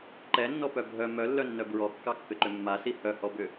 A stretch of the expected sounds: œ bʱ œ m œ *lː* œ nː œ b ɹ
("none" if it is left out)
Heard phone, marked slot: lː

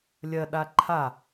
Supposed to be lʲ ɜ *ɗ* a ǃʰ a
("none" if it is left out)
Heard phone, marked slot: ɗ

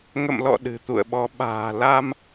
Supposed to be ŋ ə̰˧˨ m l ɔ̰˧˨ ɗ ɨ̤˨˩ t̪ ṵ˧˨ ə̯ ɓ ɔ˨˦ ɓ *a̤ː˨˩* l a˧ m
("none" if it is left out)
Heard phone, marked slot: a̤ː˨˩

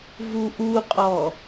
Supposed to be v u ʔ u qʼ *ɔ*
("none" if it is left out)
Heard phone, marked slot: ɔ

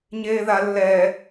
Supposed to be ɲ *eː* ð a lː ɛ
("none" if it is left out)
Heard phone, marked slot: eː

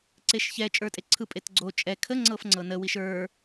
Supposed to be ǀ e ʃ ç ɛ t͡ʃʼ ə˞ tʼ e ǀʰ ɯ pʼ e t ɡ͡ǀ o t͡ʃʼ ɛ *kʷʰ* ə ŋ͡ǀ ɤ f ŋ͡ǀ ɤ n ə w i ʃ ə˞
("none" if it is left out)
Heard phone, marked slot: kʰ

